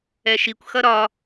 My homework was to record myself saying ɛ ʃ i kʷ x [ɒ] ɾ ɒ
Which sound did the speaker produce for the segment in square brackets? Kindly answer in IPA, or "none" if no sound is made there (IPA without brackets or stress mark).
ʌ